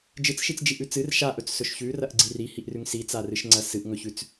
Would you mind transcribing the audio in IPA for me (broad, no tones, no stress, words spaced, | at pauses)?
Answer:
d͡ʒɨt͡sʃit͡sd͡ʒiʔʉ t͡sɨr ʃaʔɵt͡ssɵʃ çʉrɐʔɡ͡ǀi rihiʔrʉŋ sit͡sarɨʃŋ͡ǀɐ sɨʔŋɵçʉt͡s